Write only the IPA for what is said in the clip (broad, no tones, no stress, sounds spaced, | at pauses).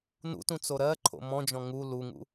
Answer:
n ṵ t ũ t͡s o ɾ ɜ ǃʰ o̰ m ɔ̃ d͡ʒ ɔ̃ ŋ u l u ŋ ṵ